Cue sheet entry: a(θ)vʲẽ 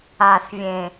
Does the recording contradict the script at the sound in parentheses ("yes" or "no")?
no